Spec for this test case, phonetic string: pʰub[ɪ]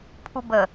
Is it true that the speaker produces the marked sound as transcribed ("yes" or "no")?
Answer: no